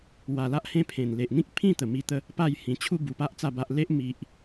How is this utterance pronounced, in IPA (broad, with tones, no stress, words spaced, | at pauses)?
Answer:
wa˨˩la˦ʔ hẽ˧ pʰẽ˨˩n le˨ʔn̪ĩ˦k̚pʰĩ˥˧ t̪ə˨˩mi˧ t̪ə˨˦ | pa˥˧jhĩ˨˩ t͡ɕʰu˥˧bu˨˩pa˦ʔ t͡sa˥˧ba˦ʔ le˦ʔ mi˨ʔ